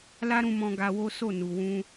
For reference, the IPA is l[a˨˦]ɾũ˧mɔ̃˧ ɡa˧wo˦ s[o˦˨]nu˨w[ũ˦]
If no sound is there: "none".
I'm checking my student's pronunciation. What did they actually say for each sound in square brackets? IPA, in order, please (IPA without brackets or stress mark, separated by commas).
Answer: a˦, o˦˨, ũ˧